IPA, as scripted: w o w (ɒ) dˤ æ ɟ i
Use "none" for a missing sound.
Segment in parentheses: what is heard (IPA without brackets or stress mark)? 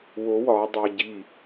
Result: ɒ